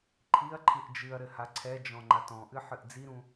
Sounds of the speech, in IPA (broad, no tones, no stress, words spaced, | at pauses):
ǃʰiɐ̯ ǃʰɨʔd͡ʒɨɐ̯ɾɘ haǀʰɛd͡ʒɔ̃ ŋ͡ǃatɔ̃ʔɨ ħɨʔd͡ziɾũ